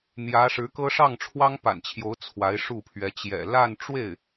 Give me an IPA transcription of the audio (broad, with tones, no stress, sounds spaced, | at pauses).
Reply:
n̪ j ä˧˥ ʂ ɻ̩˧˥ k ɤ˥ ʂ ɑ˥˩ ŋ ʈ͡ʂʰ w ɑ˥ ŋ p a̰˨˩ n t͡ɕʰ j o˧˥ ʊ̯ t͡sʰ w a˧˥ ɪ̯ ʂ u˥˩ pʰ ɥ ɛ˧˥ t͡ɕ j ɛ̰˨˩ l a˥˧ n ʈ͡ʂ w e˥˩ ɪ̯